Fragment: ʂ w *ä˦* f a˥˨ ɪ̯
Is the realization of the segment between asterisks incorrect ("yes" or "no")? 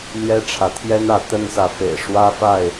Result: no